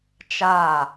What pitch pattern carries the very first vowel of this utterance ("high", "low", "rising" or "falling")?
falling